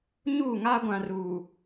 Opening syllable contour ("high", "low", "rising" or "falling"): falling